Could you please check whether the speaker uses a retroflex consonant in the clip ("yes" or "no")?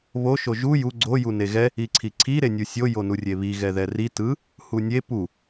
no